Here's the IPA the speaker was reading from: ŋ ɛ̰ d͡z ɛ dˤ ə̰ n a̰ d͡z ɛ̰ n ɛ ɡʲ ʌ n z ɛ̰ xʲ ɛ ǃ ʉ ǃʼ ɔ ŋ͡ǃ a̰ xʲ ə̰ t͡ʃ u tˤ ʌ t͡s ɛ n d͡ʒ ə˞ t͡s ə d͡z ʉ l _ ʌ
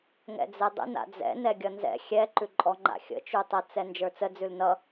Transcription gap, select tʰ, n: n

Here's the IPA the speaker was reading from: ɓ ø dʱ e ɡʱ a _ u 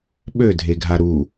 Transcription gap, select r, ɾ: ɾ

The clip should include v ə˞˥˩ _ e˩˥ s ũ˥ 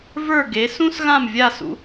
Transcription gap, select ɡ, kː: ɡ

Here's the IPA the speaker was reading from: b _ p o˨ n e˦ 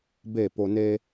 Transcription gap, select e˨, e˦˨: e˦˨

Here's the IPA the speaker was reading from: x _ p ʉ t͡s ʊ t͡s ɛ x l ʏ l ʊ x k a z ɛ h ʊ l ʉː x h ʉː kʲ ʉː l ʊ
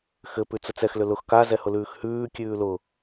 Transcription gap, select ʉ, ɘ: ɘ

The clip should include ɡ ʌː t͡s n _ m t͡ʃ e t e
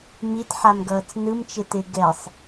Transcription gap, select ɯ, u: ɯ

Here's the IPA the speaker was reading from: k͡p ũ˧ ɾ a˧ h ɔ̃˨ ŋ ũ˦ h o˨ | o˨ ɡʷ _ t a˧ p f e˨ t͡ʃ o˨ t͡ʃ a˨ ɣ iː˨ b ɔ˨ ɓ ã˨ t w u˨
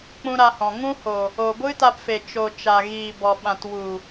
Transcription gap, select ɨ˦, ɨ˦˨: ɨ˦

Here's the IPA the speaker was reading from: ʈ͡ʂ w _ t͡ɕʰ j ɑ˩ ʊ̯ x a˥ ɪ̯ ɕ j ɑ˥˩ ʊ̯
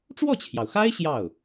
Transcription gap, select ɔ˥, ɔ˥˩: ɔ˥˩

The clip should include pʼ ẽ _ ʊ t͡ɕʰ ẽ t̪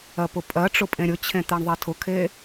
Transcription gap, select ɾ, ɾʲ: ɾʲ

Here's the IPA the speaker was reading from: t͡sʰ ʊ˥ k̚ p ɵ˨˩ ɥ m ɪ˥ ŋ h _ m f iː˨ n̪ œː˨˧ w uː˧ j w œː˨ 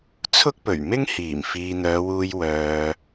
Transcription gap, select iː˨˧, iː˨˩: iː˨˩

